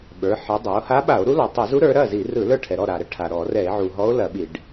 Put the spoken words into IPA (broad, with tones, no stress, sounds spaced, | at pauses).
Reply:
ɓ ə˞˩˧ ħ i˩˧ dˤ a˩˧ o̯ h a˧˥ ɓ a˧˩˧ o̯ ɾ u˧˥ l ɔ˩ tˤ ɐ˧˩˧ z u˧˥ ɾ ə˞˩˧ ɾ ɐ˥˩ z i˧˩˧ r ɯ˧˩˧ l ə˞˥˩ ʈʰ ɛ˩ ɾ ɔ˥˩ ɾ a˩ ɾ ə˧˥ ʈʰ a˩ ɾ ɔ˧˩˧ r ɛ˧˩˧ e̯ ʕ u˩ ɦ ɔ˧˥ o̯ l ɐ˧˩˧ ɓ i˧˩˧ ɖ